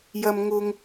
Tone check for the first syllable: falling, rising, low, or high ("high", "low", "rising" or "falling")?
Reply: low